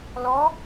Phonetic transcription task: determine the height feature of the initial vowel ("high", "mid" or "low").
mid